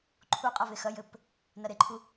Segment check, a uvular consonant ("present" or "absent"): present